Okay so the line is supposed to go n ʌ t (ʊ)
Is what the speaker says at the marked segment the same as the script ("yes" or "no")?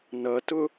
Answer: yes